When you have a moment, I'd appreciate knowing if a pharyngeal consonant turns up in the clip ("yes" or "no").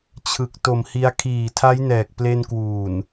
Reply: no